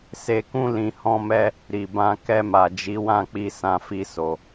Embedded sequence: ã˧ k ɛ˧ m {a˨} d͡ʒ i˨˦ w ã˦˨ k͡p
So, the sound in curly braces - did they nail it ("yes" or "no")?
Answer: yes